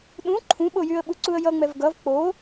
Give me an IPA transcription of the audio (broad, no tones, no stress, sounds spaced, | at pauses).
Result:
ɗ ũ ǃʰ ũ ɓ o j y ə̯ ɓ u ǀ u ə̯ j ʌ ŋ͡m ɛ v ɡ ʌ v k͡p o